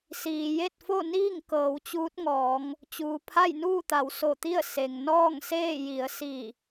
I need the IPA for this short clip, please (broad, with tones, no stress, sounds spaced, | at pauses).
s iː˩ j e˥˨ t̚ f o˥˨ n iː˥˨ ŋ k ɤː˩˧ w t͡ɕ uː˧˥ t̚ ŋ ɔː˩˧ ŋ | t͡ɕ uː˩ pʰ a˥˨ j n uː˥˨ t̪ a˩˧ w s o˧˩ t̪ i˥˨ ə̯ s e˩ ŋ n ɔː˥˨ ŋ s eː˥˨ j i˩˧ ə̯ s i˧˩